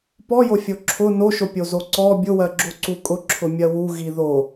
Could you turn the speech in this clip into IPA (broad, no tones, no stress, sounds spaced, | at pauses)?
p ɔ j o fʲ o ǁʰ ʊ n o ʃ o pʲ o z o ǀ ɔ bʲ ʊ w ɜ ɡ͡ǁ o ǀ u kʼ ʊ ǁʰ ʊ mʲ ɜ w u ɣ i ð o